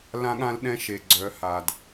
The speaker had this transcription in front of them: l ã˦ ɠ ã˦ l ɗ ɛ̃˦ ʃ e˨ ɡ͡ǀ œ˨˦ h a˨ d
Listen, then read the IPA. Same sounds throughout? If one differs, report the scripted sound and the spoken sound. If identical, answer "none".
none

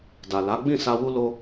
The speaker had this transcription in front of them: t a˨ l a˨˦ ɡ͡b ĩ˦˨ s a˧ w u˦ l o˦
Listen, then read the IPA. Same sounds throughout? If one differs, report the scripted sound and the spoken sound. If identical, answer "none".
t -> d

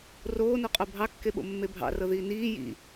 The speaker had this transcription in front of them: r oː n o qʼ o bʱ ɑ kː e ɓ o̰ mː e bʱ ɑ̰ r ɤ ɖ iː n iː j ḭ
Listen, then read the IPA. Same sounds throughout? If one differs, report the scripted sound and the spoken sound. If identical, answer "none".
ɖ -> ð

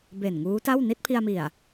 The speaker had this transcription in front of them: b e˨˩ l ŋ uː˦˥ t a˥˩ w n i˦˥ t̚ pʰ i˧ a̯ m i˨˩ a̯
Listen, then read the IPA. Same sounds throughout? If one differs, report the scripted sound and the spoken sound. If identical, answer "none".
l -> n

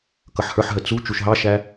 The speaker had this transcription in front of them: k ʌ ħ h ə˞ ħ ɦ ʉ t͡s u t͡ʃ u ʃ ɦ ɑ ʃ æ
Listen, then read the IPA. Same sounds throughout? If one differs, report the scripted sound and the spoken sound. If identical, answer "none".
ʉ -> ə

